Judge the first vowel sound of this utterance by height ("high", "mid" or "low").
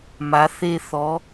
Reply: low